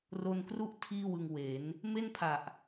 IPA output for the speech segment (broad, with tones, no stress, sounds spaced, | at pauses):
r o˧ n k r u˦˥ ʔ tʰ iː˥˩ w ɯ˧ ŋ w e˩˦ n | m e˥˩ n pʰ a˨˩ ʔ